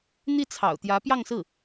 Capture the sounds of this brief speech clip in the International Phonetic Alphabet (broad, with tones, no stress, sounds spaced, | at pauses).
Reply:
n̪ i˥˩ t͡sʰ ɑ̰˨˩ ʊ̯ t̪ j ä˧˥ p j ɑ˥˧ ŋ s ɹ̩˥˩